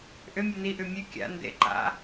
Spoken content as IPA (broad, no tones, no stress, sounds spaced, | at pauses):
ʔ ʏ mʲ ʉ n i ʔ ʉ mʲ ʉ kʲ a̰ n d ḛ ǃ a̰